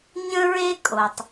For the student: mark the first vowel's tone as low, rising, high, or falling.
high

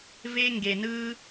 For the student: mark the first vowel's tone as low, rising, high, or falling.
high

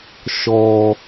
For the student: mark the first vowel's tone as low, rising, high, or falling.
low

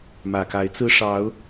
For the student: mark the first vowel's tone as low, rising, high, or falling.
low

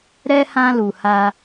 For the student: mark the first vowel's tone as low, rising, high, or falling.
high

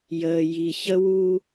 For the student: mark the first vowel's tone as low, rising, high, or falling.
low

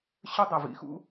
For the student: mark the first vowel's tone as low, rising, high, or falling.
high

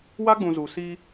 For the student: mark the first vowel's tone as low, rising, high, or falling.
high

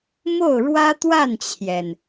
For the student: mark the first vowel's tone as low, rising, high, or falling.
falling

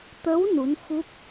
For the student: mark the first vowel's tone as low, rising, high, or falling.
rising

